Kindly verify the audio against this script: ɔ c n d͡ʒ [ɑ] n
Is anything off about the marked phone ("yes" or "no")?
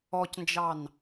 no